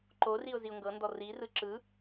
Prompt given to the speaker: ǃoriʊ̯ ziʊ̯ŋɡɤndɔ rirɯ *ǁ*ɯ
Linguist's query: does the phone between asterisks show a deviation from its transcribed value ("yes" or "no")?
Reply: no